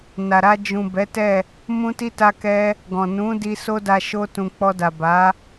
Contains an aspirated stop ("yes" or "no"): no